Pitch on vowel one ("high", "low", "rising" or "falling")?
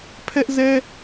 high